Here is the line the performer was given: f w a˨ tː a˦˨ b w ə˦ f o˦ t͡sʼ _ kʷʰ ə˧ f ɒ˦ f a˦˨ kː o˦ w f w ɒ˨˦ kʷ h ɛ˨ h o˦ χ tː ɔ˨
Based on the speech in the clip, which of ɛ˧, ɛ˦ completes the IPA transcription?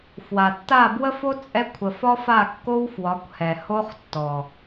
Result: ɛ˦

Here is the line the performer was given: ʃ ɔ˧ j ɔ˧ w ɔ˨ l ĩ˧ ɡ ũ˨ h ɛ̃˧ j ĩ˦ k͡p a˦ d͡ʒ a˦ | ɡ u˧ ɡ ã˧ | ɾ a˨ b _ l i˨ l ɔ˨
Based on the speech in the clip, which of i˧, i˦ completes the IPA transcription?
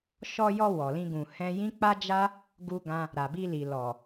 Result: i˧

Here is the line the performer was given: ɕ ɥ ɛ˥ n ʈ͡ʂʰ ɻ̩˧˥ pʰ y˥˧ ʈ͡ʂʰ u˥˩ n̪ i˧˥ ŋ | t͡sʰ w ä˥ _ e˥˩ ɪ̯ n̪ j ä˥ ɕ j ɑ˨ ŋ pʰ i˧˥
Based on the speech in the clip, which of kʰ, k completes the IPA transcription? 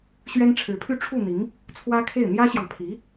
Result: kʰ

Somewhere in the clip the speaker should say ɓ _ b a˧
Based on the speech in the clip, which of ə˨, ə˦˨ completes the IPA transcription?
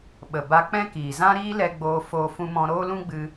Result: ə˨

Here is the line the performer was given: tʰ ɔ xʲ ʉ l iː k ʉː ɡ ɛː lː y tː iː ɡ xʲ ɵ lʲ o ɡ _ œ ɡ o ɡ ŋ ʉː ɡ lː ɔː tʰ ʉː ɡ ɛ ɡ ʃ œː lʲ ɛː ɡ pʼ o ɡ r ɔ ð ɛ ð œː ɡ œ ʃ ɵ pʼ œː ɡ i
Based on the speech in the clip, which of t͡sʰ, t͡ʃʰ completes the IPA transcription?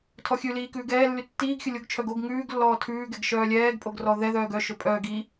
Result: t͡ʃʰ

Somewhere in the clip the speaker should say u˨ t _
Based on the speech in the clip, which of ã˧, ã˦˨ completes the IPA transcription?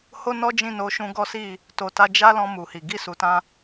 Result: ã˧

